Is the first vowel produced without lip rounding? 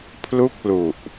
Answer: no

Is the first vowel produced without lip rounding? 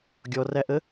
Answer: no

